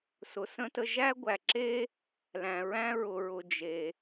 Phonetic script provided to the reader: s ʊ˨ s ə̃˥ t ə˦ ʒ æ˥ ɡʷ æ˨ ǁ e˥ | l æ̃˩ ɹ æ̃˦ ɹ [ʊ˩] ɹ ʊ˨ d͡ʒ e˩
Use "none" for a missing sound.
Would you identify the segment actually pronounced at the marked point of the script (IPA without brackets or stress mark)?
ʊ˨